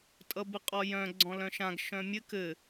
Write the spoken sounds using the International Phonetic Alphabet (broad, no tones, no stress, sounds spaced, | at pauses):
tʼ ʌ b ɘ qʼ ɔ j œ̃ ɡ͡ǀ ɔ̃ l œ̃ ʃ ã ɡ ʃ œ̃ mʲ ɘ k ɘ